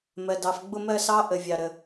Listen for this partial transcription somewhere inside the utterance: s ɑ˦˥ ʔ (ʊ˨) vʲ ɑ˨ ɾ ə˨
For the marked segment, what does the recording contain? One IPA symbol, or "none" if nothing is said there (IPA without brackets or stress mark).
ə˨